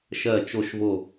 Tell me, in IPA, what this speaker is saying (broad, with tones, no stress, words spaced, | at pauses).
ʃɜː˥˧t͡ʃo˥˧ʃvo˥˧